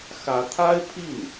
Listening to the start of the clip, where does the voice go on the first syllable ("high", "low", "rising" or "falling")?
rising